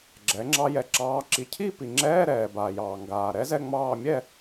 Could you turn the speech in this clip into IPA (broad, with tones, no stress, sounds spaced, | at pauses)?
ɡ͡ǁ ɛ˩˥ ŋ͡ǁ ɑ˦˥ j ɛ˨ ǁ ɑː˧˥˧ ǁ i˩˥ cʰ i˥˧ p i˨ ŋ͡ǁ ɛː˧˥˧ ɾ ɛː˨ b aː˨ j ɑː˨ ŋ ɡ aː˨ ɾ ɛ˦˥ z ɛ˥˧ ŋ͡m ɑː˥˧ mʲ ɛ˥˧